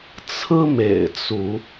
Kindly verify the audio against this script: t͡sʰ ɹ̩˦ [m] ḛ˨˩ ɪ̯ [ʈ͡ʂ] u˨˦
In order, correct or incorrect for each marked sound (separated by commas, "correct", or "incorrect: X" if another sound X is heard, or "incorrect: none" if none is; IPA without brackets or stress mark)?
correct, incorrect: t͡s